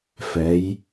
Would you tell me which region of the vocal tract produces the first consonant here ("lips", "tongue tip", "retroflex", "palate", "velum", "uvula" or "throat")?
lips